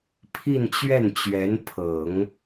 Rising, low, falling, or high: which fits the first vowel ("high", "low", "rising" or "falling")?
falling